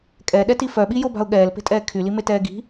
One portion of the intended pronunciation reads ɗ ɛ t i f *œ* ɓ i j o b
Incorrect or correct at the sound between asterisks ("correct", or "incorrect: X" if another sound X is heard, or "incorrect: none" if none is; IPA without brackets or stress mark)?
correct